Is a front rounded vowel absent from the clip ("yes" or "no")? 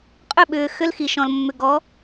no